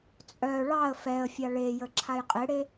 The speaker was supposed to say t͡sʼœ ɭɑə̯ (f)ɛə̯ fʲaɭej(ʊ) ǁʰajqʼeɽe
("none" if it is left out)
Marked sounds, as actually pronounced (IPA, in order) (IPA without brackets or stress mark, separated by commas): f, ə